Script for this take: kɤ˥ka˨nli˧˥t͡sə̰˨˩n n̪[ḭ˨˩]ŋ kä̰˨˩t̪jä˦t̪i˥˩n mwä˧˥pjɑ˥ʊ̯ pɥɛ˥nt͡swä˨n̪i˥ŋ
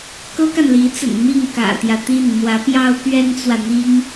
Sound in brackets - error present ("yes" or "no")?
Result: yes